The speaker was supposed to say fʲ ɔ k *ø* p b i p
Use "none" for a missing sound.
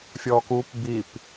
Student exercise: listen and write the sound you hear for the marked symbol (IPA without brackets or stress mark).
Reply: u